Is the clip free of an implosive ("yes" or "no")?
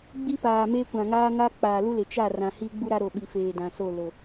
no